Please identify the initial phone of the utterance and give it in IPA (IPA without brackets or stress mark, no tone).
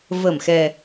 v